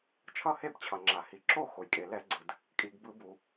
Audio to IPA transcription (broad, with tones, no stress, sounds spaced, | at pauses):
t͡ʃʰ ʌ˥˩ h e˥˩ b t͡ɕʰ ʌ˩ ŋ͡ǁ a˩ h i˩ ǁ o˥˩ x o˩ j kʼ e˩ l ɛ˧˩˧ ɡ͡ǀ ɯ˩ d | kʼ i˩ ɡ b ɯ˧˩˧ b u˩